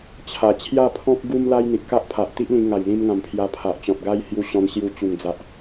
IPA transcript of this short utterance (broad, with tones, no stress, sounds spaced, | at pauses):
t͡ɕʰ a˨˩ t͡ɕʰ j a˥˧ pʰ ɔ̃˦ k̚ ɡ u˦ m l a˦ j n̪ i˨ ʔ k a˦ ʔ pʰ a˨ ʔ t̪ i˦ ʔ l ĩ˧ ŋ a˨˩ j l ĩ˧ m ŋ ã˨˩ m pʰ j a˧ pʰ a˨ ʔ t͡ɕ ɔ̃˨ t̚ ɡ a˦ j h j u˧ ɕ ɔ̃˧ n ɕ j u˧ t͡ɕ u˨˩ ŋ d͡z a˨ ʔ